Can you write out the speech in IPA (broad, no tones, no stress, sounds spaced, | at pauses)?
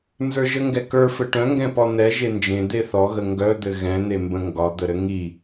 n z ə˞ ʒ ə ŋ ɡ ɛ k ə˞ f ɘ ʈ œ̃ ŋ ɡ ɛ̃ p ɔ n̪ ɛ ʒ e n d͡ʒ ẽ d̪ e θ ɔ ɣ ə ŋ ɡ œ d̪ ɘ ɣ ɛ̃ n̪ e m b ə̃ ŋ ɡ ɒ d̪ ə ɾ ɘ ŋ i